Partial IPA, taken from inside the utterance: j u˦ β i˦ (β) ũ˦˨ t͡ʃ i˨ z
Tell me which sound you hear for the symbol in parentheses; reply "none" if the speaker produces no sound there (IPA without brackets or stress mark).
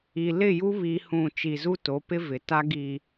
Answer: h